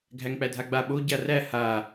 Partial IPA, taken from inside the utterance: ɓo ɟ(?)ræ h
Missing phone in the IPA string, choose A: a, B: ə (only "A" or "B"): A